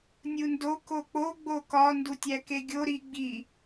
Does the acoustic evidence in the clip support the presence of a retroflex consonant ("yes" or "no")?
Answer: no